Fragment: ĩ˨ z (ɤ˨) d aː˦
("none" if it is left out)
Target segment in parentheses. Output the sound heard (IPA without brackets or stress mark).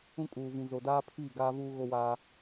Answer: o˨